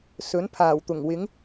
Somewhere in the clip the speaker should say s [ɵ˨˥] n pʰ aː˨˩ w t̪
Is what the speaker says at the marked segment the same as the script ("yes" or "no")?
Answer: yes